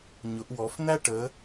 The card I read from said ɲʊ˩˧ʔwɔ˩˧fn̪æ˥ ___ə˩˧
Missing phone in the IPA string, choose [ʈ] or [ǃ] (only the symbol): ʈ